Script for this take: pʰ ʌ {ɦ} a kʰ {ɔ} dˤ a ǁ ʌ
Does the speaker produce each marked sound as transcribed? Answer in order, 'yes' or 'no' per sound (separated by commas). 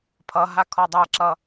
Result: yes, yes